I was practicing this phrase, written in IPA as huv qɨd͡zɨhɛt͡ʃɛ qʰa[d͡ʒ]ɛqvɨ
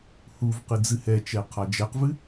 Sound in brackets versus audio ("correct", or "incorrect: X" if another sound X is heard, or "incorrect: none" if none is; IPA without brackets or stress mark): correct